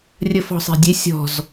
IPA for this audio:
rʲ ə f ɔ̤ sˤ e̤ dʲ e sʲ ɔ̤ z

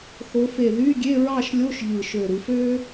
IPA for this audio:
x o˨˦ f e˧˩ ð y˧˥˧ ɡʲ e˧˥˧ ɹ ɑ˥˧ ʃ lʲ o˧˥˧ ʃ ʎ ɯ˧˩ ʃ ø˧˩ ɾ ɯ˨˦ f ø˥

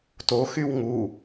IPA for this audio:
t o x y w ŋ u

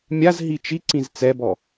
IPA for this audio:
mʲ a z ɦ i t͡ʃ i ǀ ĩ z t͡s ɛ b ɔ

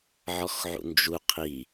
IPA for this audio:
ʕ ɔ x ʕ ṵ n d͡ʒ u qʰ i

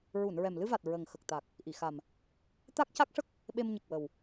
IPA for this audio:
ɹ u˨˩˨ n ɹ ɛ˨˩ m l ɨ˧ v a˨˩ t̚ ɹ ə˨˩ ŋ x ə˨˩ k̚ t̪ a˨˩ k̚ | ʔ i˨˩˨ x a˨˩ m | t̪ a˦˥ k̚ c a˦˥ k̚ ʂ ə˦˥ k̚ | ɓ e˧ m ɲ ə˨˩ k̚ w ə˨˩ w

